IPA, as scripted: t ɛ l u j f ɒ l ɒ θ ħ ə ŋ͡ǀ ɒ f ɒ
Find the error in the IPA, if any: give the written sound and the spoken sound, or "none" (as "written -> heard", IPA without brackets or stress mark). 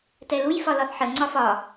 none